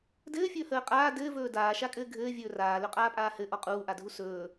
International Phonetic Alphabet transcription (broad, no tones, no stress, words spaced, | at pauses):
dɘːfʲɵːhəː qʼaː dɘːvɵː daːʃakʼɘː ɡʱɘːvʲɵː raːlɵqʼaːpʼaː hɘʔɔ qʼuːʔadʱu sɵː